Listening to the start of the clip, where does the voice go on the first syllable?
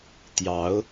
rising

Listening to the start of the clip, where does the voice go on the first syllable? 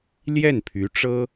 falling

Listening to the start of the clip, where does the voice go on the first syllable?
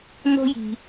high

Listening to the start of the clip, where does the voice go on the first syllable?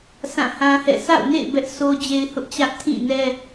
falling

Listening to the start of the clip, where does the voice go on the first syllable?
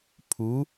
rising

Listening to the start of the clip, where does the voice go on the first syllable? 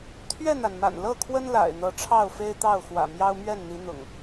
falling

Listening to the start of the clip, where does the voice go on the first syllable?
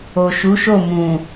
low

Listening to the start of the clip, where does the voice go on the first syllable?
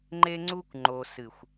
high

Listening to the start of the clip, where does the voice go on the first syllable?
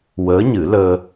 rising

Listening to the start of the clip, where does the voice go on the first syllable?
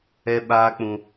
high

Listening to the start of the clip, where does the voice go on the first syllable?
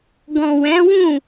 low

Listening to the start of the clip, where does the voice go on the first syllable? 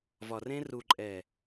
low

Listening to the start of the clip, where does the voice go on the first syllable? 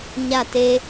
falling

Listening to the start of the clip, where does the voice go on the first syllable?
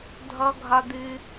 high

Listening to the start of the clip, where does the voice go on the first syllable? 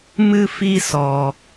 high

